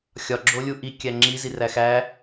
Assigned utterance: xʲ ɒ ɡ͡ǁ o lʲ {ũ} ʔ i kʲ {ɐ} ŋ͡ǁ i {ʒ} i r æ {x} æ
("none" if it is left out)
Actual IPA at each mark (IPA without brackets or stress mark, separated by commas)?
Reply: u, æ, z, x